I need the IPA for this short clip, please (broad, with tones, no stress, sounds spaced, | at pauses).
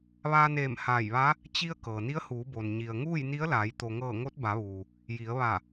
ʋ aː˧ n eː˧˩ m h aː˧˩ j ʋ a˧˥ | t͡ɕ i˧ ə̯ k ɤː˩ n i˧˥ ə̯ h uː˩˧ b o˩ n ɲ i˩ ə̯ ŋ uː˥˨ j n i˧˥ ə̯ l aː˩˧ j t̪ o˩ ŋ ɤː˧˩ ŋ o˧˥ t̚ b a˩˧ ʋ uː˩ | j i˩˧ ə̯ ʋ a˧˩